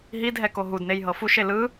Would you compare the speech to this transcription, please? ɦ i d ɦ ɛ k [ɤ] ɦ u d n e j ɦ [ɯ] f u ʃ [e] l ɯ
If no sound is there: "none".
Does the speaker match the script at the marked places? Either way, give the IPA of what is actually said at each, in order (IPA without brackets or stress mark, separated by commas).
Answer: o, ɤ, e